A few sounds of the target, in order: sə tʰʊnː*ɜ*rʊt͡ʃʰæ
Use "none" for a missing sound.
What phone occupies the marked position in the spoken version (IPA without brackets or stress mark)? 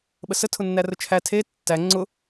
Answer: æ